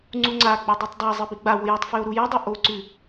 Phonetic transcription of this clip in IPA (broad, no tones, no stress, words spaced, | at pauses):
ŋ͡ǀuŋ͡ǀaɡ͡bo dˤʉtˤdˤazˤɨ biɡ͡bawo jatˤfʉo̯ ɾujɐdˤɐ ʔoǀʉ